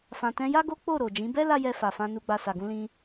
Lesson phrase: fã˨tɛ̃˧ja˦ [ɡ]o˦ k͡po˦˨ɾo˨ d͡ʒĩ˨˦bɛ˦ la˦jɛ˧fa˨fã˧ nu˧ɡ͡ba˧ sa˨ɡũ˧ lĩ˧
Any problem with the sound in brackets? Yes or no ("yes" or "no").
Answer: no